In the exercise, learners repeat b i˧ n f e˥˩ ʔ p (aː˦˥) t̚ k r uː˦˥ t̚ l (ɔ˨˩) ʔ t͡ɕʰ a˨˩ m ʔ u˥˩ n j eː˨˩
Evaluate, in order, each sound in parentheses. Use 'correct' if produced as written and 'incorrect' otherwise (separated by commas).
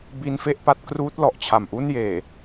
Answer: incorrect, correct